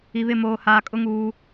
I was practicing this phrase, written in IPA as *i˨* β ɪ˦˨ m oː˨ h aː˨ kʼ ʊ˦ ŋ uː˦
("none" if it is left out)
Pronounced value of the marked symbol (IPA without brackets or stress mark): i˨